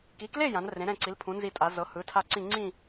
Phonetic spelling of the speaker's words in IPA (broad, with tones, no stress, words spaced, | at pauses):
ki˨˥kle˥˧ jã˨˥nrẽ˨˥ ɾɛ̃˥˧ǀi˨˥lpʰũ˨˥ nzi˥˧tʼa˨˥ zɤ˨˥ hɯ˨˥tʰa˥˧ǀĩ˥˧ ŋ͡ǀĩ˥˧